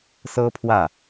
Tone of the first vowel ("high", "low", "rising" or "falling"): high